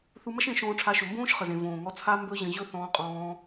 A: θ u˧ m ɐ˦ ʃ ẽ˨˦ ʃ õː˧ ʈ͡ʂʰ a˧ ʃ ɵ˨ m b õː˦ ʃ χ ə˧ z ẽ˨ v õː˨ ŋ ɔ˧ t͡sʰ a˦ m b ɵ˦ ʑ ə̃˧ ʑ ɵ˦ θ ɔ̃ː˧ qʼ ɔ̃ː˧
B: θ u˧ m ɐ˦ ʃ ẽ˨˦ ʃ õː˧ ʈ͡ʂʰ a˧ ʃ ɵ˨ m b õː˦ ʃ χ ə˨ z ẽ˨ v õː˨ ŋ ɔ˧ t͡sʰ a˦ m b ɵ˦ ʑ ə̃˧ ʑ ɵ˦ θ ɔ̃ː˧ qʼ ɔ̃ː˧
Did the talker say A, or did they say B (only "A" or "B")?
B